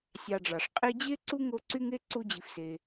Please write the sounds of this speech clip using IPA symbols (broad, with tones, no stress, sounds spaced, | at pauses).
sʲ ɑ˨ ɖ͡ʐ ɑ˩ ʂ qʼ e˦ d͡ʑ e˥ ǀ u˥ ŋ o˦ ǀ y˥ ŋ e˥ ǀ u˦ d͡ʑ i˨ f s e˨